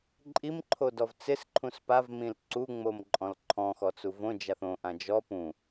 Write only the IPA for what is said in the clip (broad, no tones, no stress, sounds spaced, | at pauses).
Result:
ǃʼ i m ǃʰ o d ɔ v t͡s ɪ s ǃʰ ũ s p a v m ĩ l ǀ u ŋ͡m o m ǃʼ ɔ̃ l ǃʰ ɔ̃ x ɔ t͡s u v õ d͡ʒ a θ õ ʔ ã d͡ʒ ɔ p ũ